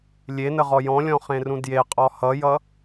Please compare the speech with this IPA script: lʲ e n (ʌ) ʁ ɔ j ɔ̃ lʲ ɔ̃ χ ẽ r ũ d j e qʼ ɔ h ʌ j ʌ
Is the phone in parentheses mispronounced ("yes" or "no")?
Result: yes